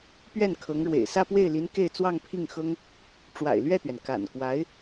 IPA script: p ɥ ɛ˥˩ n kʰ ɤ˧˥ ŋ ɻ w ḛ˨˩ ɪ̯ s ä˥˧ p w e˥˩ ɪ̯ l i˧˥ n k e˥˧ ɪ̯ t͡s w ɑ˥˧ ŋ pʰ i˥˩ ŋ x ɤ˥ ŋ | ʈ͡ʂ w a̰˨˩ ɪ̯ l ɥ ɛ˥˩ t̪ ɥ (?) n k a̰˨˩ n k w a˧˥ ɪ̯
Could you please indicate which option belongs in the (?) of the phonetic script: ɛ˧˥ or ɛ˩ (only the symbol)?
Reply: ɛ˩